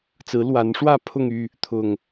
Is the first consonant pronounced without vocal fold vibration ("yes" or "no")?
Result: yes